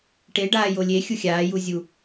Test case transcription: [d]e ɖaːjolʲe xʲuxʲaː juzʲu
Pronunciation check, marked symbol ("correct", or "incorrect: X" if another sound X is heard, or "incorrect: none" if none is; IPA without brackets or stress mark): incorrect: ʈ